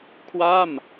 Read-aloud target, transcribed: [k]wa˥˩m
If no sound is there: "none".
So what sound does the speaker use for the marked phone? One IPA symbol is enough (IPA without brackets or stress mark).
kʰ